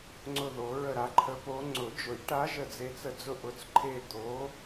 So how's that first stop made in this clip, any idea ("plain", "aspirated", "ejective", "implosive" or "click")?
click